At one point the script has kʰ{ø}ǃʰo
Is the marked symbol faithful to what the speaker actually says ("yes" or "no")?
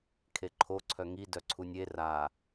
no